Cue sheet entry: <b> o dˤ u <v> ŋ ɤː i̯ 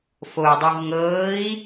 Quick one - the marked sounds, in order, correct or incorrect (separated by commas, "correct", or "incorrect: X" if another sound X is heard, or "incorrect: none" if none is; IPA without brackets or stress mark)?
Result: incorrect: f, correct